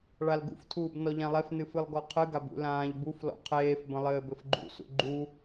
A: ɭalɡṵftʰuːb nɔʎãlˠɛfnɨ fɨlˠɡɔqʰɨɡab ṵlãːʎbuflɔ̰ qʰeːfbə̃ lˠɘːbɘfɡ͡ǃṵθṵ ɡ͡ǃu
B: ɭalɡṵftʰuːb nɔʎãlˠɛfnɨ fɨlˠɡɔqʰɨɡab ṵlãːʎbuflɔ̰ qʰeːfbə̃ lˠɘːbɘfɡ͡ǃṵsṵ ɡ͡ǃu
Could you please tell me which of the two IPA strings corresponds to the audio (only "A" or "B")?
B